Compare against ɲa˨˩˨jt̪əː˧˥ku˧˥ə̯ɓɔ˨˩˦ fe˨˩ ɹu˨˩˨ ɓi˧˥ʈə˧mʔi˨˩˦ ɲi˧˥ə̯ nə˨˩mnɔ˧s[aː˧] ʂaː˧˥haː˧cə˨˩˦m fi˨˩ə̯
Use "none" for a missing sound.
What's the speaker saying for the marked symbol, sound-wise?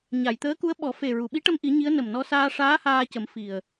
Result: aː˧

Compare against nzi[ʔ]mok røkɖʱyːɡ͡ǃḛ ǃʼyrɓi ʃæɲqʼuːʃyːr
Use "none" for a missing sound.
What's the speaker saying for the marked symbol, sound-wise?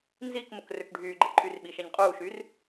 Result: k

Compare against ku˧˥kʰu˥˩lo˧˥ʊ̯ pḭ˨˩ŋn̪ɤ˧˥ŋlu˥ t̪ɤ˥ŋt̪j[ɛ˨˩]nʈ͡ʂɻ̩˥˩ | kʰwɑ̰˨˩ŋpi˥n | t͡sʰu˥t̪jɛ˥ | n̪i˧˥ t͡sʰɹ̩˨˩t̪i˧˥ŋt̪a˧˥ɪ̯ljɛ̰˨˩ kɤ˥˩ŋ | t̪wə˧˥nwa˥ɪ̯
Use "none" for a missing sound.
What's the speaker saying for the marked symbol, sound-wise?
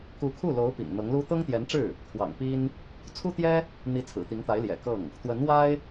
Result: ɛ˧˥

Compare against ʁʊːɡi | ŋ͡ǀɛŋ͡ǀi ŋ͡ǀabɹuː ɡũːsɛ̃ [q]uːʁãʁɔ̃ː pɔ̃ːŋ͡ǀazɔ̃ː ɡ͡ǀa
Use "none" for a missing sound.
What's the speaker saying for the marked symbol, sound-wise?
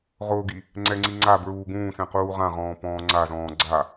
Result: q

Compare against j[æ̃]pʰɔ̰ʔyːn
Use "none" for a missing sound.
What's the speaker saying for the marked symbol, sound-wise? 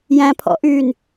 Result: æ̃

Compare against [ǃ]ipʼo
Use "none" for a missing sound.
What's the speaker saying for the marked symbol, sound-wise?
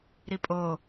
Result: ɾ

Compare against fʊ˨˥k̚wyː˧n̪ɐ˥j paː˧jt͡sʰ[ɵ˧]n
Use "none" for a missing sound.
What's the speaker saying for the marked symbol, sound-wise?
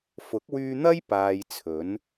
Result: ɵ˨˥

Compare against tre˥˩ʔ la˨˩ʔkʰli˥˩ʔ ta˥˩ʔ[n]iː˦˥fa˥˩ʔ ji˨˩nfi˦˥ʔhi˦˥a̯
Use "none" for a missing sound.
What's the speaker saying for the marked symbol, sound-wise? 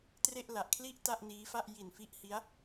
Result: n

